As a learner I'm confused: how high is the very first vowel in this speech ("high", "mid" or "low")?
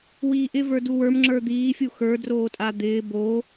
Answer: high